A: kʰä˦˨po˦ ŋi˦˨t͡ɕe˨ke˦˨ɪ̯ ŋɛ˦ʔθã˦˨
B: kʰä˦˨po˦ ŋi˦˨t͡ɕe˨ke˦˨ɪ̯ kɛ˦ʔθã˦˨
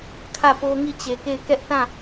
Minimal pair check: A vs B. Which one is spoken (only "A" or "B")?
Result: B